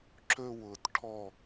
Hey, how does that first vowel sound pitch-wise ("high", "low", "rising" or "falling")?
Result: high